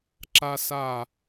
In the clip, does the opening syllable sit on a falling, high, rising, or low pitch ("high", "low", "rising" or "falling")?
high